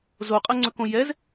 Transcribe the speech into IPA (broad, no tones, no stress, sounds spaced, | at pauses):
z o qʼ ɜ ŋ͡ǀ ɵ k õ j ɛ z